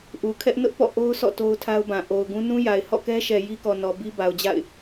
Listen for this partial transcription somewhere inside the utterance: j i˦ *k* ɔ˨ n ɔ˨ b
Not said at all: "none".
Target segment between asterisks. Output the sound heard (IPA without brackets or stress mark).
k